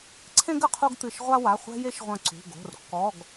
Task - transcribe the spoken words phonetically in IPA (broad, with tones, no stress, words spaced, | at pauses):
ǀʰẽ˦ɡ ɘ˦qʰu˦ɡt̪ɨ˧˩ʃ ʁʷa˦wa˩˧˩ χʷɛ̤˦ je˦ʃʁʷɐ̃˧˩ ǀṳ˩˧˩ɡo̤˩˧˩r kːɔ˩˧˩ɡ